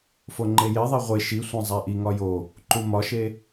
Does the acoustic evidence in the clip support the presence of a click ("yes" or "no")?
yes